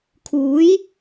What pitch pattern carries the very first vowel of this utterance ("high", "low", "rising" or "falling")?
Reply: rising